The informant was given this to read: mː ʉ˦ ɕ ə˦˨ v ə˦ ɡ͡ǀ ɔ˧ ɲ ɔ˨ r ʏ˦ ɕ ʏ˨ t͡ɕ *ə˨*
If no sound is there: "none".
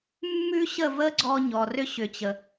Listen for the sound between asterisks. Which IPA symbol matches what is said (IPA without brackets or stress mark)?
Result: ə˨